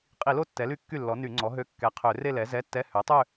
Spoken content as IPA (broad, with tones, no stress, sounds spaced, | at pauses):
qʼ i˧˩˧ l o˥˧ tː ɛ˩˥ l y˥˩ kː y˥˩ lː ɔ˩˥ n y˧˩˧ ŋ͡ǀ ɔ˩˥ ɦ ø˧˥˧ kː ɛ˩˥ qʰ ø˧˩˧ r e˥˧ l ɛ˩˥ z ɛ˧˥˧ tː ɛ˧˥˧ h ø˩˥ tˤ ø˥˧